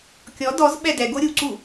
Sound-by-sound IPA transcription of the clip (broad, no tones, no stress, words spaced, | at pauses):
kʲɔ dɔz ɓɛdɛɡo ɾʲuǀu